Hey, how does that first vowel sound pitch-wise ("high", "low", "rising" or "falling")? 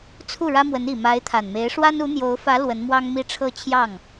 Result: falling